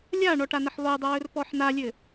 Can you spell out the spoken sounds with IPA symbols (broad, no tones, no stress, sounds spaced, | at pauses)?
lʲ a ɳ ɔ ʈ a n ə ħ lˠ ɵ dˤ ə w ɵ r p ɔ ħ n a lʲ ɘ